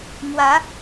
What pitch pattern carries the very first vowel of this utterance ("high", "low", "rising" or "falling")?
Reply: rising